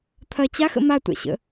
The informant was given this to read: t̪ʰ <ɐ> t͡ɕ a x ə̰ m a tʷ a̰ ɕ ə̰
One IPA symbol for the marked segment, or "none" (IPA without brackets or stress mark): ɐ